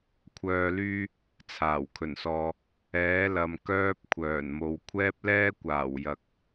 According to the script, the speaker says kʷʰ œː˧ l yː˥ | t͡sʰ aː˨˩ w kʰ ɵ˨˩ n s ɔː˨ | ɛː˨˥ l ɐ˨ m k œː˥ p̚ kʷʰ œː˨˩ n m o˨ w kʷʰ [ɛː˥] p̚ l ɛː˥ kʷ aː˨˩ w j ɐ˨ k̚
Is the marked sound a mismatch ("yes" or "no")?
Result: no